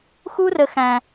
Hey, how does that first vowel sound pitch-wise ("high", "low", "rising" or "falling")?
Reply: high